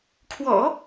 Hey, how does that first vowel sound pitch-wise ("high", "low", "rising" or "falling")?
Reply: low